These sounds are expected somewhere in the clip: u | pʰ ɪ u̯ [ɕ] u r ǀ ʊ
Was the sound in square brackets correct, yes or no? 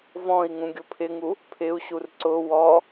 yes